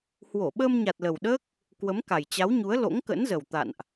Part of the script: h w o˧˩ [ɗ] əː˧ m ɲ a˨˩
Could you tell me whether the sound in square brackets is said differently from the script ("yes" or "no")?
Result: yes